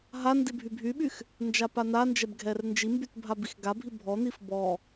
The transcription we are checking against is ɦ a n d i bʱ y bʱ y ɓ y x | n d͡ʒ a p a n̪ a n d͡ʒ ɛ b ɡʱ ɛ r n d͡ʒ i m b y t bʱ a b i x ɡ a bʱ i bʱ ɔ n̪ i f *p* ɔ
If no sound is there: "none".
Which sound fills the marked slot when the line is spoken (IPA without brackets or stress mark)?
b